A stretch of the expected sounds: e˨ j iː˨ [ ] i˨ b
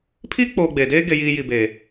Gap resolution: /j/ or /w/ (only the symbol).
j